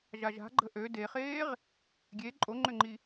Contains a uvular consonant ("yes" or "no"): yes